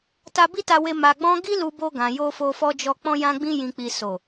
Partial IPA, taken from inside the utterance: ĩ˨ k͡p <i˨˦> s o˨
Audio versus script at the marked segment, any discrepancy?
yes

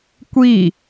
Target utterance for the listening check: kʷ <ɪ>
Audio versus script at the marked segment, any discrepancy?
yes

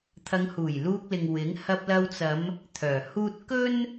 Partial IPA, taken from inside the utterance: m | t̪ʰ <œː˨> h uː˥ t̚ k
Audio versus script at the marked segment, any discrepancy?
yes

